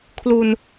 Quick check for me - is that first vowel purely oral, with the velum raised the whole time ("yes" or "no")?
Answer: yes